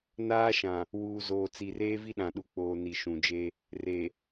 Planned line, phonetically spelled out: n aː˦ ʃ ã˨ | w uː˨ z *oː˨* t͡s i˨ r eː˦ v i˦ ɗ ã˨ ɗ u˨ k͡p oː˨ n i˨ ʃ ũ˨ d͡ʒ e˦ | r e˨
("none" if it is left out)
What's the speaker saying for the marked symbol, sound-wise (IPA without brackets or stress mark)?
oː˨